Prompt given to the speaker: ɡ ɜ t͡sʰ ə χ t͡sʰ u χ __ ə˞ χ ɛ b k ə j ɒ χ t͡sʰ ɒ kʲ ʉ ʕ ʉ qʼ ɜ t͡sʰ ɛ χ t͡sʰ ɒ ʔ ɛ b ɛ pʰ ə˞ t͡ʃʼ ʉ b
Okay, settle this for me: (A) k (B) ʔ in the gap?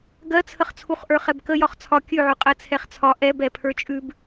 B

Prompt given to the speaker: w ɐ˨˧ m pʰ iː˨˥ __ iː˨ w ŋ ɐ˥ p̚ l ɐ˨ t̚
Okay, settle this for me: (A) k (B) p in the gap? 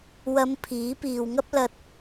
B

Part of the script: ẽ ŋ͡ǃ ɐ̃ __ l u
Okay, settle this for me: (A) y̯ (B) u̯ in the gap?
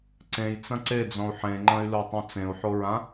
A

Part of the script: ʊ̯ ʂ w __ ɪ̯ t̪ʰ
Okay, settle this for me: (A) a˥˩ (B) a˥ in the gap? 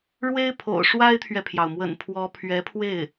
B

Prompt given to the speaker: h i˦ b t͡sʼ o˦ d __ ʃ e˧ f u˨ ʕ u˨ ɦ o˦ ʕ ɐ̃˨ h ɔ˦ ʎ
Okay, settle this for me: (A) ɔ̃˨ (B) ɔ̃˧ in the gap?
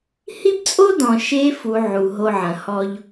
A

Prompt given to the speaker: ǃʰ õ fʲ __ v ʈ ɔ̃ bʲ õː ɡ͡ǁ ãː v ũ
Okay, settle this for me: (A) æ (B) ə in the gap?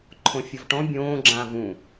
B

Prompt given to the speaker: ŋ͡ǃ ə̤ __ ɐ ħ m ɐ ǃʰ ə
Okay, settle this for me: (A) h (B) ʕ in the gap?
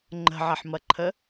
B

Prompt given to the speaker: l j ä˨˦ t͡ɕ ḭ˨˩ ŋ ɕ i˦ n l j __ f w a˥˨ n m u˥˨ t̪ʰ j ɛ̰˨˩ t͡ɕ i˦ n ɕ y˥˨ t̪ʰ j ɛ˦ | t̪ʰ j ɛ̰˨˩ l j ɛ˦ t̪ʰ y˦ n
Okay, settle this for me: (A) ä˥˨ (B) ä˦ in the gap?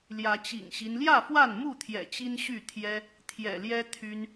A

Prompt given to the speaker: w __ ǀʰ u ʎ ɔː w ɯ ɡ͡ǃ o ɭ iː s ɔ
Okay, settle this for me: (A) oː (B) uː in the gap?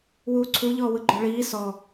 B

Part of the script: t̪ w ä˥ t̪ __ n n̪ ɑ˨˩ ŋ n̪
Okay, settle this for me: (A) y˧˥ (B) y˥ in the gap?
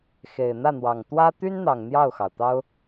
B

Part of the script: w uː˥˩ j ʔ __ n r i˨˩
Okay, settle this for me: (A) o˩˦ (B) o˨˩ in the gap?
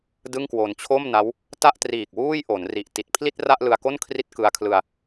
A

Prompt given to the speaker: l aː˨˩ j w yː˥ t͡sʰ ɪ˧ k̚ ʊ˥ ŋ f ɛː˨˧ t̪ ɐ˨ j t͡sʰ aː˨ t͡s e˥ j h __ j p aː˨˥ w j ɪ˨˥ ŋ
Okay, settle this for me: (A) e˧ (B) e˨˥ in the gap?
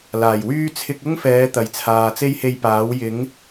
A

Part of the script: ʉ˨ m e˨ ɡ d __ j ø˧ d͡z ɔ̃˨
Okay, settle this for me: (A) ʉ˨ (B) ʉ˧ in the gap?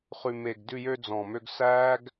B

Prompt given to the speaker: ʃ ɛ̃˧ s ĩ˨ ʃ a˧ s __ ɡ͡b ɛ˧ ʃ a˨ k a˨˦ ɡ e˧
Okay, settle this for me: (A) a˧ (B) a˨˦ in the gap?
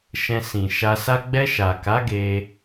A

